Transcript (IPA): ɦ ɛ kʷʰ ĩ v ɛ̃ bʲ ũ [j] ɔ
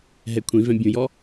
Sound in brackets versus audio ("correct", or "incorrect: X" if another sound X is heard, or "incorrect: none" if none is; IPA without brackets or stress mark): correct